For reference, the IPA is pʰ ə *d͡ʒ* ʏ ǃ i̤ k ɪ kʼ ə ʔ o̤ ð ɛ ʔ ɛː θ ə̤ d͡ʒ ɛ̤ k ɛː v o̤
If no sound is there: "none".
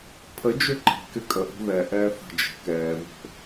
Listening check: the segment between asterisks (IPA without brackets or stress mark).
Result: d͡ʒ